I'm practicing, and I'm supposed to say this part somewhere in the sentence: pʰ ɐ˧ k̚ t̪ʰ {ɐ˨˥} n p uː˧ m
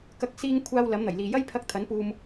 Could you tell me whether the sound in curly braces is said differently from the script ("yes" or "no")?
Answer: no